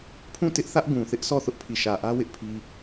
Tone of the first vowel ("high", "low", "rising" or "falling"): falling